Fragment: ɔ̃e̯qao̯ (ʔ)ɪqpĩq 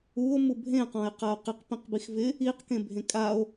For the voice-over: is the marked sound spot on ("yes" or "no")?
no